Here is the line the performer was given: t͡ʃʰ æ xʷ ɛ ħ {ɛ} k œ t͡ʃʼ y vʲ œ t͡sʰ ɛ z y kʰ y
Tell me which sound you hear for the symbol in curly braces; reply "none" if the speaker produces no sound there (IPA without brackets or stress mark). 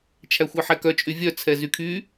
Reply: ɛ